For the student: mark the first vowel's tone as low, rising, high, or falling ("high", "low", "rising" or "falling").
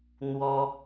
high